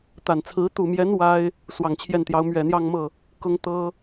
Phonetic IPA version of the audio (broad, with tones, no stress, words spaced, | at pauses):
t̪a˨˩nt͡sʰɹ̩˧˥ t̪u˨˩mjɛ˧˥n wa˥ɪ̯ | swɑ˨˩ŋt͡ɕʰjɛ˥˩nt̪jɑ˧˥ʊ̯ mɥɛ˨˩n̪jɑ˥˧ŋmɤ˥˩ | kʊ˥ŋt̪ɤ˥